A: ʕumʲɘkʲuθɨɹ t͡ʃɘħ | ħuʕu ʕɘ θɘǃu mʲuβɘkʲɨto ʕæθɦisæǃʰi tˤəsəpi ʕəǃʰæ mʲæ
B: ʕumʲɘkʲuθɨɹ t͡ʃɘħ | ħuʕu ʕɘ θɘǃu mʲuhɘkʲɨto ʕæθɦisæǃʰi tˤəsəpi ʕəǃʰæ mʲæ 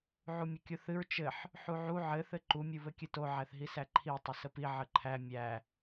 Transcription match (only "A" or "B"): A